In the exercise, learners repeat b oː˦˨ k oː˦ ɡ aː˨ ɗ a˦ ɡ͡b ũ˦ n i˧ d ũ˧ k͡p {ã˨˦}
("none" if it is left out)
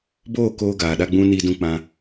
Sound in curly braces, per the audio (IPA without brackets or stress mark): ã˧